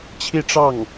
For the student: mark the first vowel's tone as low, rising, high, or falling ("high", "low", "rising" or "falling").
falling